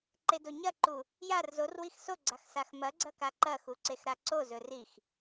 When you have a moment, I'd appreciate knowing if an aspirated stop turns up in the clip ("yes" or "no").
no